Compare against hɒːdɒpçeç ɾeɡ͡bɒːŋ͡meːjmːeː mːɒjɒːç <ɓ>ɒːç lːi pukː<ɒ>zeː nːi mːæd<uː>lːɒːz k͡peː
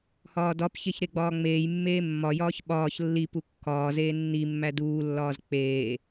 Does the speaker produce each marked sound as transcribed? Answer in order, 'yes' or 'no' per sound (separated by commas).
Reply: yes, no, yes